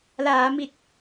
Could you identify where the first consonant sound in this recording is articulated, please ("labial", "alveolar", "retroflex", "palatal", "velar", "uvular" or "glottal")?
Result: alveolar